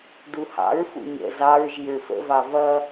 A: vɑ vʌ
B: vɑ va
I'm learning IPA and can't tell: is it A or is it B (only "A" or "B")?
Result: A